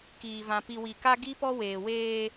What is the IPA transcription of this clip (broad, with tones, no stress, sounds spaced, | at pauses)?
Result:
k iː˨ v ã˨ p i˨ w i˨ k a˦ ɡ i˦ p ɔ˦ w eː˨ w eː˦